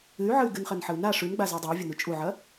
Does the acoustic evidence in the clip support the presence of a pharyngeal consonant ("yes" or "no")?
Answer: yes